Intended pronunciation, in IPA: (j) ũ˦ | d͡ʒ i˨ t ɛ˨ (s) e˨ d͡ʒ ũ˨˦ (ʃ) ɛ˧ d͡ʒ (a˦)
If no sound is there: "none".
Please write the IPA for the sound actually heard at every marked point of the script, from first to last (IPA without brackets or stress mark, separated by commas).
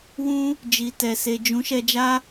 w, s, ʃ, a˦